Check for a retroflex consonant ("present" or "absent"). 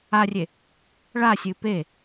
present